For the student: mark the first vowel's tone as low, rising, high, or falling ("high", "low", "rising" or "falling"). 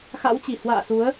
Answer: rising